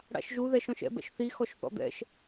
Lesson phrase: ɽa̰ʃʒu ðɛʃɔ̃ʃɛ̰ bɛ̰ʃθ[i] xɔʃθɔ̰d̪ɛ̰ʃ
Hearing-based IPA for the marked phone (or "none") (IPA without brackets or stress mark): i